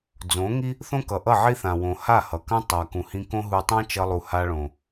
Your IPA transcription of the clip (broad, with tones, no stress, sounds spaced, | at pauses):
d͡z õ˨˦ ŋ i˦ | θ õ˦ k ʌ˨ ʔ ʌ˦˨ ʕ i˦ θ ã˨ w õ˨ h a˦˨ h ʌ˨ k ã˦ tˤ a˨ k ũ˨ h ĩ˧ k õ˦ ɦ u˧ tˤ ã˦ t͡ʃ ʌ˦ lˠ u˧ h a˧ ɭ õ˨